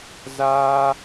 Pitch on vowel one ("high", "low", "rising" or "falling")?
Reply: high